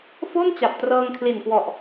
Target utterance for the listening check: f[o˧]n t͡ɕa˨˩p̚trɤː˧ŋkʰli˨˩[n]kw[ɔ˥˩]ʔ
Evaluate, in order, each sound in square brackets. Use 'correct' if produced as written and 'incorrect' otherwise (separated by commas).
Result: incorrect, correct, incorrect